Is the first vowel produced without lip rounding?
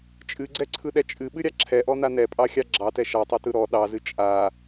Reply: yes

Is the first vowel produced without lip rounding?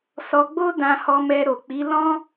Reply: no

